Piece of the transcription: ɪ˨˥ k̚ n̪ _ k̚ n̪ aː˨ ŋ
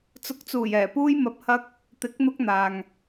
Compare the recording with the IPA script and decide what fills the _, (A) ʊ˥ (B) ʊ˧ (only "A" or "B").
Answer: B